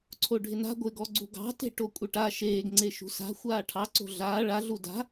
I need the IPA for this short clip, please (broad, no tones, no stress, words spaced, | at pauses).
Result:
ǀʰoɖʱɪna̤ ɡʷɪɡɔɡ͡ǀṳ ɡɑ̤te̤ ʈokʷʼɐʈa ʃeːɡŋ͡ǀe ʃṳsa̤ xʷaːʈʰɑ ǀo̤ɮaː ɭaɮu da̤